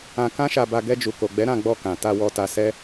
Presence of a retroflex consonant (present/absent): absent